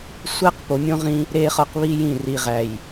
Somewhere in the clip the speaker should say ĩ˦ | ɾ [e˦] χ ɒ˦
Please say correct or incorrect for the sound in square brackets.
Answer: correct